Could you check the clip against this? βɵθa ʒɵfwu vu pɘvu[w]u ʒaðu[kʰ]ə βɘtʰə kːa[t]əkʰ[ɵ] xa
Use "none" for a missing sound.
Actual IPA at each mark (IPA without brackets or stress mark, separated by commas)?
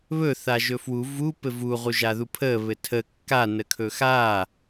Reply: ʁ, pʰ, n, ɵ